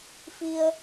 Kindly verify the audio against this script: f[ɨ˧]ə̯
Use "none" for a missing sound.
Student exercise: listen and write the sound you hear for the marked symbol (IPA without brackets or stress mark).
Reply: i˧